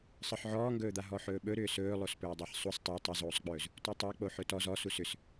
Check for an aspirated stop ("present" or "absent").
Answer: absent